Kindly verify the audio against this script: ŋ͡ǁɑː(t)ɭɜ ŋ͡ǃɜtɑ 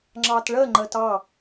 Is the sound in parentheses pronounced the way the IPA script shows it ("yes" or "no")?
yes